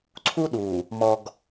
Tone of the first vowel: high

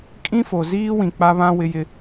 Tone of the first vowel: high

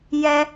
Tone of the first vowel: high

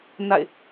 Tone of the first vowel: falling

